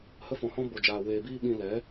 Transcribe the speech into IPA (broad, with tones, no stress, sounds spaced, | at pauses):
h ə˦ f ɔ̃˧ h ɔ̃˦ b o˧ d͡ʒ aː˧ w eː˧ b iː˦ ɓ ĩ˧ l ɛ˨˦